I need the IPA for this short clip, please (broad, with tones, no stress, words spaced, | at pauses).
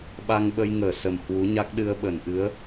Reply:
ɓa˧ŋɓə˧jŋəː˧˩ sə˨˩mhwu˨˦ɲa˦˥k̚ ɗɨ˧ə̯ɓə˧˩nʔɨ˨˦ə̯